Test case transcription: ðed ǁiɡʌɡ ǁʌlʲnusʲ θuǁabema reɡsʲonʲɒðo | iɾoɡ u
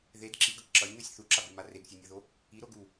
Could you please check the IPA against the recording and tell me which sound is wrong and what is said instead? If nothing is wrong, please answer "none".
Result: ɒ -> ʌ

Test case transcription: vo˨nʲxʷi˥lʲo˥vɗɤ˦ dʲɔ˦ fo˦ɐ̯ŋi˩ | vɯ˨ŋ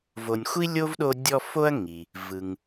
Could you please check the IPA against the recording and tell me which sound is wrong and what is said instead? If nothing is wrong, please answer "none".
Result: ɤ˦ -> o˦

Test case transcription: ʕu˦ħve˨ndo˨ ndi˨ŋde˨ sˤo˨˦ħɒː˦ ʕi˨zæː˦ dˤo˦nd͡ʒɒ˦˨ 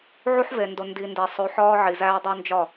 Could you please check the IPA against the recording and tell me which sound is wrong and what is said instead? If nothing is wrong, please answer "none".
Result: ŋ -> n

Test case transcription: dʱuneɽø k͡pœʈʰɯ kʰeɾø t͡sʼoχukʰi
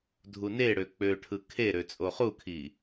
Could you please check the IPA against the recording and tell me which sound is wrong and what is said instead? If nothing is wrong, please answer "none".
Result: œ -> ø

